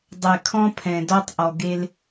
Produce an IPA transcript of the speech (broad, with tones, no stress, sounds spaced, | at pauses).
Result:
dˤ ɛ˨ kʰ ɔ̃˦ pʰ ɛ̃˨ d ɔ˦ tˤ ʔ ɔ˨ ɡ e˦ l